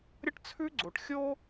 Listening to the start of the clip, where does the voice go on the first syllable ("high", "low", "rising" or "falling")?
high